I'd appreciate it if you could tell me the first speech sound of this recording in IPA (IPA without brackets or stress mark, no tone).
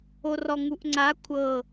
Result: o